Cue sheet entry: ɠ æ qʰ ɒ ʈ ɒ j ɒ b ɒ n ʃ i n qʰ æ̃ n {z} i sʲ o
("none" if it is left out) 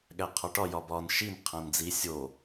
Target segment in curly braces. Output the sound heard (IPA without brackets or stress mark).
d͡z